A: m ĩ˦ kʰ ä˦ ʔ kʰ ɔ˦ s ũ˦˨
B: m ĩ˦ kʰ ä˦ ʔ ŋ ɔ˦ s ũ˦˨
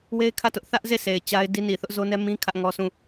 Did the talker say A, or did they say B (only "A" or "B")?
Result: B